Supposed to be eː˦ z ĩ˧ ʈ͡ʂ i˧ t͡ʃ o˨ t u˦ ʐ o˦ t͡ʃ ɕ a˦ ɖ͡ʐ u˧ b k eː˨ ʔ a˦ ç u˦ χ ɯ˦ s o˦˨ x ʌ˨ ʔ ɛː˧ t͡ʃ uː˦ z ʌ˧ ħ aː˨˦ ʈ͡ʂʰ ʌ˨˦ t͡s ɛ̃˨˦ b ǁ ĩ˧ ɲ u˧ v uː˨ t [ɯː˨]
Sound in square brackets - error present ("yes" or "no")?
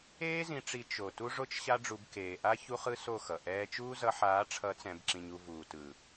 yes